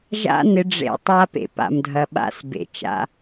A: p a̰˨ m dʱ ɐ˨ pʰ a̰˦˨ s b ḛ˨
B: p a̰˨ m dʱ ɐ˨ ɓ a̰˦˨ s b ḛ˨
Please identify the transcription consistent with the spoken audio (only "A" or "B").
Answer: B